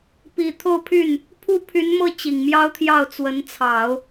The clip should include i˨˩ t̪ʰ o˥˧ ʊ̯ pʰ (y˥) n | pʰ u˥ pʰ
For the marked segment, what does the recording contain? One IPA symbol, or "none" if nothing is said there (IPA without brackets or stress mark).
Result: y˥˩